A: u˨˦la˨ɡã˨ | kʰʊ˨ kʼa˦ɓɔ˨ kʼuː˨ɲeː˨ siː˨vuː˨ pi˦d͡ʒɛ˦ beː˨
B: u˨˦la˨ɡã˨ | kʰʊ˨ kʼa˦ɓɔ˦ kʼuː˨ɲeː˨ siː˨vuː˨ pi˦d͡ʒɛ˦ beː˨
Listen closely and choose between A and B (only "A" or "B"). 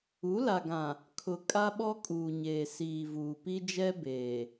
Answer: B